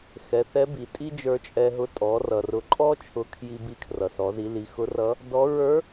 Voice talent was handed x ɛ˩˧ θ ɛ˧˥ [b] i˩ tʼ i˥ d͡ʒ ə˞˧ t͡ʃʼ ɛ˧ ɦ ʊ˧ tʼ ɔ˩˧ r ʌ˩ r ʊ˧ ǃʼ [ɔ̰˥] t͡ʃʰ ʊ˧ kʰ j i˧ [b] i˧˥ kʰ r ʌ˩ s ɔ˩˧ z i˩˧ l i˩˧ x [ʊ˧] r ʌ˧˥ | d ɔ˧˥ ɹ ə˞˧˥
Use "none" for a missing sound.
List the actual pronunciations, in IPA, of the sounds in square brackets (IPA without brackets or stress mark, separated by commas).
b, ɔ˥, b, ʊ˧˥